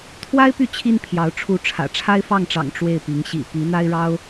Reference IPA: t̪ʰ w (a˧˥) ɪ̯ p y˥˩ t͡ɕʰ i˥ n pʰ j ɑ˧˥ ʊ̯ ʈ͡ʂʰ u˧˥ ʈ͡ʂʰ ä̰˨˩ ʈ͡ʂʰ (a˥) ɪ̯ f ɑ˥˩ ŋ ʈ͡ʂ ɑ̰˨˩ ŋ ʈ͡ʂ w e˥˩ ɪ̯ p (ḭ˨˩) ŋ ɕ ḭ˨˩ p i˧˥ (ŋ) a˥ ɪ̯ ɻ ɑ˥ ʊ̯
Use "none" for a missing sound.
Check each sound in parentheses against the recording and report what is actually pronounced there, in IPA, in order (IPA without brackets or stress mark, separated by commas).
a˥, a˥, i˧˥, n̪